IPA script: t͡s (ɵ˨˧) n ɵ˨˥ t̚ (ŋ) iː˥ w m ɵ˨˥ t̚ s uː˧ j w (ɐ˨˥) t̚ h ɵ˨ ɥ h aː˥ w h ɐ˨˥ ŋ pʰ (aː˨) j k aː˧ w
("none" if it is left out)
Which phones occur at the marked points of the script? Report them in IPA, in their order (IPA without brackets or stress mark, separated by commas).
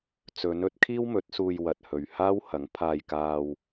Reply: ɵ˨˧, kʰ, ɐ˨, aː˧